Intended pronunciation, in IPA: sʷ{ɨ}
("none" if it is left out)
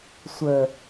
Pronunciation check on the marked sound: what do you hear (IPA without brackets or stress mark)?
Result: ə